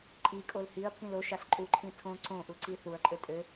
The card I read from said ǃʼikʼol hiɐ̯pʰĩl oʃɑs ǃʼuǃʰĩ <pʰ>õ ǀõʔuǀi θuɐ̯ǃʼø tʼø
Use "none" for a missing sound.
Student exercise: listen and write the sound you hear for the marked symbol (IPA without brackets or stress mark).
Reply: tʰ